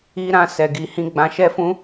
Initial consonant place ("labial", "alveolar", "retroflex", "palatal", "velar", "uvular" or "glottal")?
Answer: alveolar